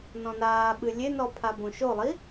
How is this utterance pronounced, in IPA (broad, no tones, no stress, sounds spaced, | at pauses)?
n ɔ̃ n aː ɓ ɨ lʲ e n ɔ pʰ a b õ ʃ o lˠ i